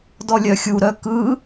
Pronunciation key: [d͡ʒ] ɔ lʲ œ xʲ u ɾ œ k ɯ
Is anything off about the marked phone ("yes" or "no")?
yes